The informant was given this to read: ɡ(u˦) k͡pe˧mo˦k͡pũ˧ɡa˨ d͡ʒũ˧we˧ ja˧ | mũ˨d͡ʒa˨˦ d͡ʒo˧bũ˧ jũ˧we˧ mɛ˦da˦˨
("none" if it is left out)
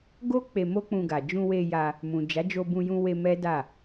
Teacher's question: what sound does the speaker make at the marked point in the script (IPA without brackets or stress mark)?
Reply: o˦